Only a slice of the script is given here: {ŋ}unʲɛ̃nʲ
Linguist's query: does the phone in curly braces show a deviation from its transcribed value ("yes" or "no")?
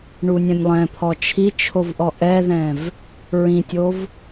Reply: yes